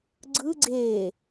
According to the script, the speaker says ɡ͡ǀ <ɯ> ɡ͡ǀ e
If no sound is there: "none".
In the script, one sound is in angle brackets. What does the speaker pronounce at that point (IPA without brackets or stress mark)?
ɯ